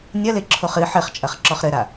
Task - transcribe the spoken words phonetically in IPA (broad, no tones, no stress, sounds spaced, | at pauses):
nʲ ɐ l e ǁʰ o χ ɨ ħ ɘ χ t͡ʃʼ ɐ χ ǁ ɔ χ ɾ ɘ ɾ a